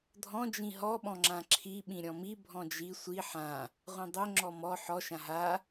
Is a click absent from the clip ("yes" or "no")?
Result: no